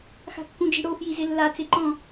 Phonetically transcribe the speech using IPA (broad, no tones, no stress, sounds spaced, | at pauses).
x a̤ kː ũ d͡ʒ i̤ ɽ o f j i z ɪ lː a t͡s e ǃ ɔ̃